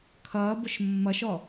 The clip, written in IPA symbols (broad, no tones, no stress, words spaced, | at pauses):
kʰʌːbʊʃ mːʌʃɔ